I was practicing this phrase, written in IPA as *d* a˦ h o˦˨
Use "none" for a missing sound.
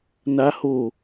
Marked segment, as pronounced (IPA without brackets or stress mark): n